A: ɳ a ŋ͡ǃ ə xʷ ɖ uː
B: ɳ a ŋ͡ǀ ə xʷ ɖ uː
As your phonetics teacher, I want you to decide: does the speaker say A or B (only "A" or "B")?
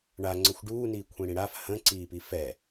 B